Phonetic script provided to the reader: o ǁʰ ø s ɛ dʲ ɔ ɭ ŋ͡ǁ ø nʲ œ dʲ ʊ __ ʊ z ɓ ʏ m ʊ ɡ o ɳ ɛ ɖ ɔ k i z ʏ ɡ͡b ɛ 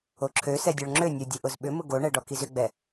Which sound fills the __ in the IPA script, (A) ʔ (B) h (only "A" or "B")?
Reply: A